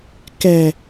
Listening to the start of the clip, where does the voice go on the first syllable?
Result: low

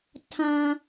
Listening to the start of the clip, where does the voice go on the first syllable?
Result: low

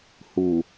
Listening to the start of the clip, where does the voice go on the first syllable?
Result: low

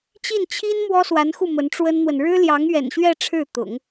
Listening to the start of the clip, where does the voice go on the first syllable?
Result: falling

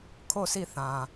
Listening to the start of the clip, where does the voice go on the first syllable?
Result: falling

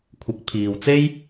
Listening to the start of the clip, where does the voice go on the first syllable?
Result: rising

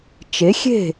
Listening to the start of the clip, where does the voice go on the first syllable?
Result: rising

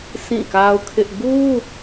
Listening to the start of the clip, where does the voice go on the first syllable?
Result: falling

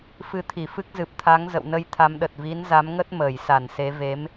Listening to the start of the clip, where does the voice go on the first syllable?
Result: rising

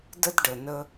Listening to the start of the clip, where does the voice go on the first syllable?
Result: high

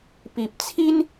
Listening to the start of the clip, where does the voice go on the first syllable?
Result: low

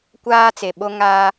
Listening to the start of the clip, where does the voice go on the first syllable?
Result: high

